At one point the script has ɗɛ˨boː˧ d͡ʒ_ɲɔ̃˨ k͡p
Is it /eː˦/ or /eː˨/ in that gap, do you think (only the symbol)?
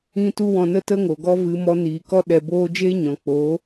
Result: eː˦